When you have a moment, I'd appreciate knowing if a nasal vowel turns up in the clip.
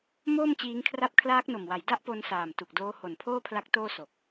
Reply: no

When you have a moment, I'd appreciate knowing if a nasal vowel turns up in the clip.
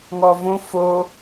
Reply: yes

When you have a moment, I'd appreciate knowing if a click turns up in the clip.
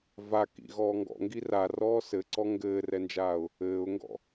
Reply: yes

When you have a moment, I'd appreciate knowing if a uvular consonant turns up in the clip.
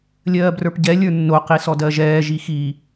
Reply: yes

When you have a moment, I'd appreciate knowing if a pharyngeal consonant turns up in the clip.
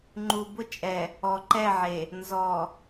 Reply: yes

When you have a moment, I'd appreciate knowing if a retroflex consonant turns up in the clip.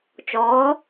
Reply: no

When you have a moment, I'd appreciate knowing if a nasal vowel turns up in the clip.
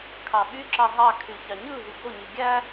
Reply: no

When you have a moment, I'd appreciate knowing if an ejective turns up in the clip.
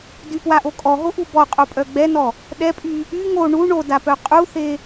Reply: yes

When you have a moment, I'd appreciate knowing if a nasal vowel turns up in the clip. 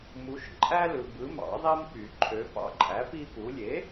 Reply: no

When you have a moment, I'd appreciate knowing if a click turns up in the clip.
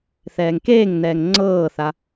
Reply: yes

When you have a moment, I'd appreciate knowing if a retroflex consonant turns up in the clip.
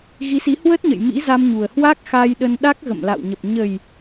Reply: no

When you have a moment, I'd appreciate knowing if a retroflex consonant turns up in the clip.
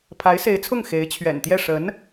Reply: yes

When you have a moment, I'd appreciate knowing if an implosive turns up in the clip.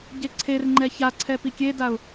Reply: no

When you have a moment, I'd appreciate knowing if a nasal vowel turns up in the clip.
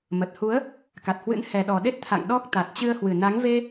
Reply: no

